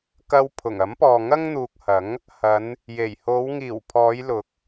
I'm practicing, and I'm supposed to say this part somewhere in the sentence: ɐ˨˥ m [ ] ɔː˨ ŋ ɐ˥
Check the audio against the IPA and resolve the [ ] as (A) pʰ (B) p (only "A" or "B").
B